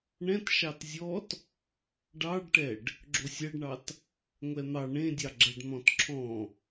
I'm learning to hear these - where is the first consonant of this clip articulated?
retroflex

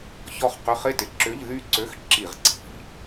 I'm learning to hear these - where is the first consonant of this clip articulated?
palate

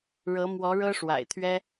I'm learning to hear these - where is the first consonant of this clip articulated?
retroflex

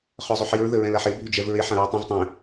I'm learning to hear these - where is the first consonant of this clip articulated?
uvula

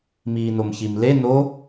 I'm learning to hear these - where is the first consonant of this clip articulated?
lips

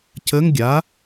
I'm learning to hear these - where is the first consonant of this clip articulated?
palate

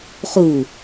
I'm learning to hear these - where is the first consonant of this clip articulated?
uvula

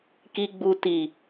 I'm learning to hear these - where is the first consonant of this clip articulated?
velum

